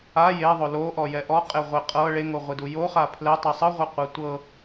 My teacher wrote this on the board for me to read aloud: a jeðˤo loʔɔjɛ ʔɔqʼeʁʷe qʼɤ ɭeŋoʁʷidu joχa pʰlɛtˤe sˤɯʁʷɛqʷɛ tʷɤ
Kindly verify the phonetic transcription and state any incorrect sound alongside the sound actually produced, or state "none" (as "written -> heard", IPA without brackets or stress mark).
none